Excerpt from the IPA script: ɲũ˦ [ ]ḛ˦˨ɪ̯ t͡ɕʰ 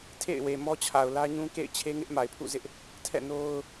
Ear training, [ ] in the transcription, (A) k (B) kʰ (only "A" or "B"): A